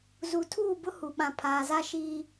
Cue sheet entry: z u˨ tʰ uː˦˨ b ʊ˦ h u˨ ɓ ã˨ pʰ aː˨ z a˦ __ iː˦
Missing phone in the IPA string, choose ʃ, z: ʃ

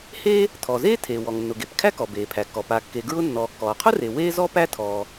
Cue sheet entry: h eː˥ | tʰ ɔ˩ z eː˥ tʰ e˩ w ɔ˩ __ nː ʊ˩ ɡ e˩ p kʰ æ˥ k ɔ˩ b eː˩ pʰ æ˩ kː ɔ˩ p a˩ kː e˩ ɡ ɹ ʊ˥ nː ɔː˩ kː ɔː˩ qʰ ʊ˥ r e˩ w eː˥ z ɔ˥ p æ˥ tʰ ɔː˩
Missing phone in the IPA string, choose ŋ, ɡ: ŋ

